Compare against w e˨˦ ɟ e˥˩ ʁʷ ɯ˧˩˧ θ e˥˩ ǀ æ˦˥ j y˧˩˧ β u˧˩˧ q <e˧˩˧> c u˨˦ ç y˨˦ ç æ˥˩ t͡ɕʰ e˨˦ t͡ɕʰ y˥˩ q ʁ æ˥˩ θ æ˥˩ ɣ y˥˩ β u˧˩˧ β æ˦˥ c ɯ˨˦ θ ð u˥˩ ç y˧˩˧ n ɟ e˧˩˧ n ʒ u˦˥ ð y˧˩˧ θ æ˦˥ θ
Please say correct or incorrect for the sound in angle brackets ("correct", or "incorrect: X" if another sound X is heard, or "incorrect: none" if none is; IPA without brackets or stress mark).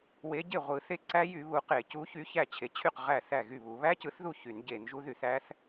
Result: correct